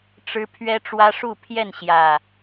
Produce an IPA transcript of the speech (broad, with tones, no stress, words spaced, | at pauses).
ʈ͡ʂɻ̩˦ pʰɥɛ˦ʈ͡ʂwä˦ʂu˥˨ pʰjɛ˥˨nɕjä˨˩